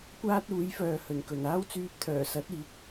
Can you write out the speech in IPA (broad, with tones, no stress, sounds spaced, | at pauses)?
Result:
kʷ aː˥ t̚ uː˨˥ j f œː˨ h ɵ˨˩ n k ɵ˨˩ n aː˥ w t͡s yː˧ p̚ t̪ʰ œː˨˩ s ɐ˨˥ t̚ iː˨˥ k̚